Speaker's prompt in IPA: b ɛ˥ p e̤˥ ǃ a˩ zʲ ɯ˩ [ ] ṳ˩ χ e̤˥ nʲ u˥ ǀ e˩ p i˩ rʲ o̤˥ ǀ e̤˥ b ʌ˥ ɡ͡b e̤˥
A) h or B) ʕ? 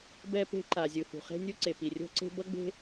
A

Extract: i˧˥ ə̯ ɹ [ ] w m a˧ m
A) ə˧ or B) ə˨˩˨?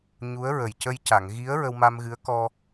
A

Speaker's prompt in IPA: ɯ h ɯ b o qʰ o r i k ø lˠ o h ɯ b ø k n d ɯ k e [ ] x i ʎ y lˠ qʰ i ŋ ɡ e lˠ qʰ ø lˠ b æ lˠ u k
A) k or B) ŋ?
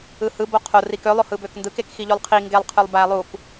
A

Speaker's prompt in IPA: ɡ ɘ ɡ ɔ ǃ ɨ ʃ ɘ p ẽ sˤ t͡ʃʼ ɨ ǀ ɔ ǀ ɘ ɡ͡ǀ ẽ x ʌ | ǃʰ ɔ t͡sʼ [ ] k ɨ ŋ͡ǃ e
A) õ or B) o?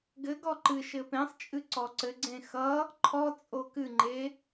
B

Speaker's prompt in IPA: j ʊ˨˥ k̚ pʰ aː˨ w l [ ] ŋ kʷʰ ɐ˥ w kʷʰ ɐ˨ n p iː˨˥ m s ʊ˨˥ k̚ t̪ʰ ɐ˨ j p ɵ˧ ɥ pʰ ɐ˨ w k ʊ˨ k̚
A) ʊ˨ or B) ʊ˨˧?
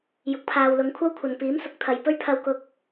B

